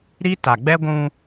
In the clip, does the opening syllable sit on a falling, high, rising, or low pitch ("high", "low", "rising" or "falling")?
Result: high